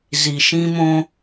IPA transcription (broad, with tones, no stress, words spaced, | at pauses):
zi˨ʃĩ˦mõ˦